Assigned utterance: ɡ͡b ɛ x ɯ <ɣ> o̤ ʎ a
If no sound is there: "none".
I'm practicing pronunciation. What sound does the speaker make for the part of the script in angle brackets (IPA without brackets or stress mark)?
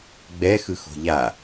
x